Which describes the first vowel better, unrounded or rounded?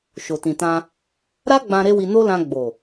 rounded